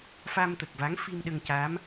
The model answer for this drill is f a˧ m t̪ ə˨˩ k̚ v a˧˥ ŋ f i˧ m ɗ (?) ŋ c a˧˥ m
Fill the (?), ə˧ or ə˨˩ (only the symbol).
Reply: ə˧